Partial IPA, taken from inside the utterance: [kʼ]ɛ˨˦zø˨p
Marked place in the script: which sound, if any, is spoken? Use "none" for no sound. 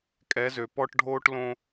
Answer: kʼ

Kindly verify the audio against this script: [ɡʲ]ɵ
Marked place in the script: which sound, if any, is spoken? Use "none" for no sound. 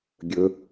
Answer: ɡʲ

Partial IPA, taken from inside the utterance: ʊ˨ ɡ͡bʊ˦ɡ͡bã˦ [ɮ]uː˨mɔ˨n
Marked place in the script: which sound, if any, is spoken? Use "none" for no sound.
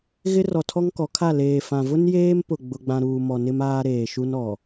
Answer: ɾ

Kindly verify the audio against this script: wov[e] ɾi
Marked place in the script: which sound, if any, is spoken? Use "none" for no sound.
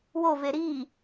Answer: e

